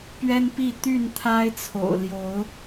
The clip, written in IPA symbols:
pɥɛ˦npi˥˨ t̪y˥˨nt̪ʰa˦ɪ̯t͡sʰo̰˨˩ʊ̯ ljo˨˦ʊ̯

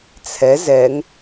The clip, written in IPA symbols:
t͡sʰɛz ɛŋ

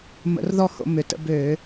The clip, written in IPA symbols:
mə̰˧˩˧rðɔ˥˩ho̰˧˩˧ mʏ˩˥tə̰˧ bøː˧˩˧

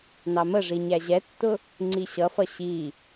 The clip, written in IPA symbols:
nɑməʐi ɲæʑɛtːʊ | ŋ͡ǀiɕʌfʌ ɕi

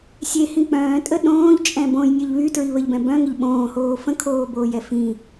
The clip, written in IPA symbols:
sʲehĩ k͡pœ̃ːtʼə ɗõːʎt͡ʃʼɛ̃ bõjnʲœʎ βytɹiβəʎbɛ̃ bœ̃ŋəʎ ɓõːhoː fə̃kʰoːboːjɛ fĩ

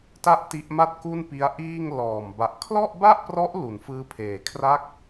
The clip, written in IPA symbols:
ta˥˩ʔti˦˥ʔma˥˩t̚ ku˥˩npi˦˥a̯ʔiː˥˩ŋ lɔː˨˩m ba˨˩ʔkʰlɔ˥˩ʔba˥˩ʔprɔ˦˥ʔ lu˩˦nfɯː˦˥pʰeː˩˦ kʰra˥˩k̚

